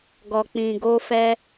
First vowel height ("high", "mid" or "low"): mid